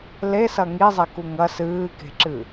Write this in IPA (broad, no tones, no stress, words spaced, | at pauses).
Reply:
lesɐ ŋizˤeku ŋɐ sɨːke̤ǁɨ